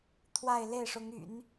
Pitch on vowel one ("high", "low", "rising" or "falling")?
falling